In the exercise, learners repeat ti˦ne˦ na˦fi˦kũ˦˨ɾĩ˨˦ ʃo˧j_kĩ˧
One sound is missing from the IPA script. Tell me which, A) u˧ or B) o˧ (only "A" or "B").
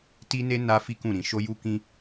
A